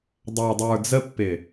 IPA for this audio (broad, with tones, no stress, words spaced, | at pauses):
dˤa˨dˤə˞˨d͡zə˦ pːɪ˨